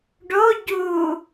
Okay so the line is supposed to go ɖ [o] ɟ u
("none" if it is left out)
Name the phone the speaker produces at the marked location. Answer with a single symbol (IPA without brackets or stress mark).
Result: o